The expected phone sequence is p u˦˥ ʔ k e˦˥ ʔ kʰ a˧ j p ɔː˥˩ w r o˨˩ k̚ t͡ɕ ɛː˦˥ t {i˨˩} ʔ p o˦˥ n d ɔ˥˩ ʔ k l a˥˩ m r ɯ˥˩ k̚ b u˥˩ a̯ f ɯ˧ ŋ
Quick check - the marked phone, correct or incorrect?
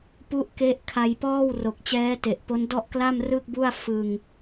incorrect